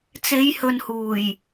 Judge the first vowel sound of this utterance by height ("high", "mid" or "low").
mid